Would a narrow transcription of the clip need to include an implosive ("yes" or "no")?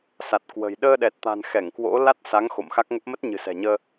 yes